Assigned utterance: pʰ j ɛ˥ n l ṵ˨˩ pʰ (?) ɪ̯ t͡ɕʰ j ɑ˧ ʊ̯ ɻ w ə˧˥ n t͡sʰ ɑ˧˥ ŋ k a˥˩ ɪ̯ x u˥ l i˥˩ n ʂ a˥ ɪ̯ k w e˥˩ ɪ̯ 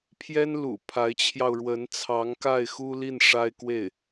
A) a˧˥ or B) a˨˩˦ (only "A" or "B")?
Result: A